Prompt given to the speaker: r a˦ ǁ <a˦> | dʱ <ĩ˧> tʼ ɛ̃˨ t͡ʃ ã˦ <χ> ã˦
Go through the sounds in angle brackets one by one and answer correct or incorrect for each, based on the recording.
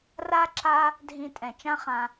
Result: correct, correct, correct

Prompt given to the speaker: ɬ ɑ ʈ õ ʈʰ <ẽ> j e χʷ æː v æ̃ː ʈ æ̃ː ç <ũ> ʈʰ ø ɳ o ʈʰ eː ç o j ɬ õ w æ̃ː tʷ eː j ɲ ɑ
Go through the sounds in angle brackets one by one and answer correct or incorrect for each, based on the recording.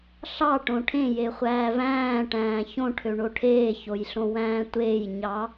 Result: correct, incorrect: õ

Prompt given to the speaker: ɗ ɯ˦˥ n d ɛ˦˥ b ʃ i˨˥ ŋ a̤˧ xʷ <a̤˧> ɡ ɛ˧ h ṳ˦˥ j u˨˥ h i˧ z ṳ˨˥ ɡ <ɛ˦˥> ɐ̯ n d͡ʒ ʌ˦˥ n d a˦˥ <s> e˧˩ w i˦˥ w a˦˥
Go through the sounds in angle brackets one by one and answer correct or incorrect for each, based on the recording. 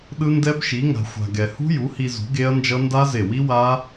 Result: correct, incorrect: e˦˥, incorrect: z

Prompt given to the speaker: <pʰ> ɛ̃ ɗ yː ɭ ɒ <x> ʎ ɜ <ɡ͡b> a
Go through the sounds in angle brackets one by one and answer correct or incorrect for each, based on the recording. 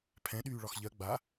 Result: correct, correct, correct

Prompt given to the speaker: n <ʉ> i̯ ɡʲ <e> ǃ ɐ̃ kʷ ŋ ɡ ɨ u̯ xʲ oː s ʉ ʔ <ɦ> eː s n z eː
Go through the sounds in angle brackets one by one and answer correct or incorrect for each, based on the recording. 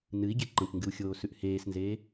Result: incorrect: ɨ, correct, incorrect: h

